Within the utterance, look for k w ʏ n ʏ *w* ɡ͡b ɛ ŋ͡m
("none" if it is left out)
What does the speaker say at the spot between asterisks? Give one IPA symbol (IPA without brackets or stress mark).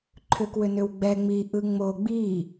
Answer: w